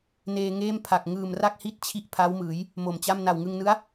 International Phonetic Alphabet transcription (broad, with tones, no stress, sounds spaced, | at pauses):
n eː˧ ŋ eː˥˩ m pʰ a˨˩ k̚ ŋ ɯː˨˩ m r a˥˩ k̚ h i˥˩ t̚ t͡ɕʰ i˥˩ ʔ pʰ a˦˥ w m ɯː˩˦ j | m o˨˩ m t͡ɕ a˥˩ m n a˨˩ w ŋ ɯ˧ ŋ n ɯ˦˥ a̯